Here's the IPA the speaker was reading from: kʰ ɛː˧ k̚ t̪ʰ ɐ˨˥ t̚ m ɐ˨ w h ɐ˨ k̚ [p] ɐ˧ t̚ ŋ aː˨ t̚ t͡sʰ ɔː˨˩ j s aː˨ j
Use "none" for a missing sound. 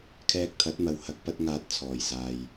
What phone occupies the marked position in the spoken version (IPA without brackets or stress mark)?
p